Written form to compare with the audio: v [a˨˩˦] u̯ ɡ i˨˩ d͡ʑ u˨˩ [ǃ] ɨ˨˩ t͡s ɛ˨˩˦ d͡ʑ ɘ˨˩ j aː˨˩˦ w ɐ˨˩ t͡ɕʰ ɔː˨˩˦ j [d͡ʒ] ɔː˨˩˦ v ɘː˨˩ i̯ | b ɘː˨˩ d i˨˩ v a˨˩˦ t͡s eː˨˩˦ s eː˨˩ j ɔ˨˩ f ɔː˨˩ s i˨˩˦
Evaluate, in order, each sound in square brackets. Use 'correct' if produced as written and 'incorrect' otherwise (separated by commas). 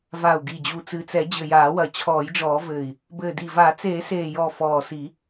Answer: incorrect, incorrect, correct